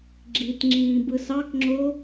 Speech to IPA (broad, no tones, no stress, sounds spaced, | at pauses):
ɡ͡ǁ i t ŋ͡ǁ ĩː b ɯ s ɑ k ŋ͡ǁ o